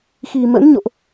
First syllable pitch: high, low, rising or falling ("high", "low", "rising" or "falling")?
low